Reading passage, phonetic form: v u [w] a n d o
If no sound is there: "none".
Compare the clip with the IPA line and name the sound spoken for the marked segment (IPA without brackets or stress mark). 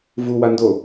w